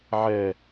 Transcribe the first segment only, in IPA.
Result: ʕ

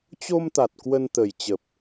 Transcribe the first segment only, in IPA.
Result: t͡ɕ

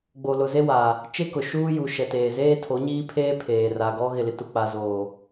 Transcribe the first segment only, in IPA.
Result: ɡ͡b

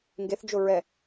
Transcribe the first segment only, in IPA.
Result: ŋ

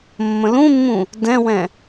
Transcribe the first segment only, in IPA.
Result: mː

